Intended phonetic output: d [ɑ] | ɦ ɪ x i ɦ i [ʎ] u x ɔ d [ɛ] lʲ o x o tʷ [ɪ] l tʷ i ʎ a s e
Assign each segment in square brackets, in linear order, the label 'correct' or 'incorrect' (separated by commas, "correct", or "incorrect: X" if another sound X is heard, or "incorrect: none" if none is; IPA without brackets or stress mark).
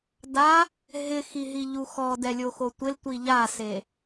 incorrect: a, correct, correct, correct